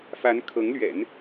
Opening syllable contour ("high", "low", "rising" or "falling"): rising